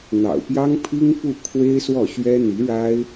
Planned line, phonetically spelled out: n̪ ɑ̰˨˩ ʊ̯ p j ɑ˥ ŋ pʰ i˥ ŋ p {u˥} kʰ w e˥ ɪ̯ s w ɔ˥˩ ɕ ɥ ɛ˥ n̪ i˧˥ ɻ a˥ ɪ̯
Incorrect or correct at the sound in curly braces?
incorrect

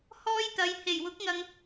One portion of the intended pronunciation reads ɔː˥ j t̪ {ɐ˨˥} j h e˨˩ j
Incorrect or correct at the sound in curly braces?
incorrect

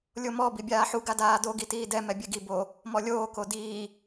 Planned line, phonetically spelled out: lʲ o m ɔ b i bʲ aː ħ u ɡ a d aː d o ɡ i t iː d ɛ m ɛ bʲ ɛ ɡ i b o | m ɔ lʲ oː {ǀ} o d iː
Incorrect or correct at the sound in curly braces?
incorrect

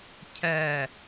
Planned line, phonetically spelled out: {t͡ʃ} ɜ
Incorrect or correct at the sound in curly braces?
incorrect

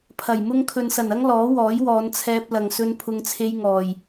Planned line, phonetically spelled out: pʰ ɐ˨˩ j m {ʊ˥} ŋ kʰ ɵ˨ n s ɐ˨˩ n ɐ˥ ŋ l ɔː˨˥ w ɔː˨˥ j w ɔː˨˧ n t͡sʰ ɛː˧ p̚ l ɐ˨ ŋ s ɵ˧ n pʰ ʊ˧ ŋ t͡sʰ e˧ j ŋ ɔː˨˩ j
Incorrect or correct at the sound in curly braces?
correct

